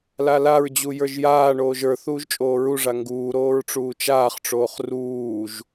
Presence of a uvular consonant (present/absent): present